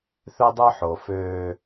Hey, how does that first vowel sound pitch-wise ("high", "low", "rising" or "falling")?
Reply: high